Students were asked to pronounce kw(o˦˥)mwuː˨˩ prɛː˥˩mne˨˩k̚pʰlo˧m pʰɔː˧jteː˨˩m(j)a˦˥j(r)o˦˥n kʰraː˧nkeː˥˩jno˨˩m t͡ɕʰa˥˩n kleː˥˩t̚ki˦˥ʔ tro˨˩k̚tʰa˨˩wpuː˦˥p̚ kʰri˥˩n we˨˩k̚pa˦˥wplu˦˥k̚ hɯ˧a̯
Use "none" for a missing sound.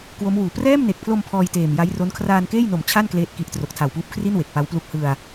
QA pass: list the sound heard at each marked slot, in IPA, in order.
o˦˥, j, r

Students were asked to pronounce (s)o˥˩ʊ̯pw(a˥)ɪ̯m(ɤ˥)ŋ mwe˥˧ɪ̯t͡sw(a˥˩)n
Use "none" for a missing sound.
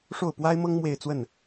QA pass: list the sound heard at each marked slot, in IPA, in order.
ʂ, a˥, ɤ˥, ə˥˩

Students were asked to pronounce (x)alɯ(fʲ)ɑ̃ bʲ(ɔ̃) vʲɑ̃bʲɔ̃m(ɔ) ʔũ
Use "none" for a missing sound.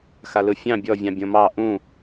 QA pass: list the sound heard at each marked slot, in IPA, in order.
x, fʲ, ɔ, ɑ

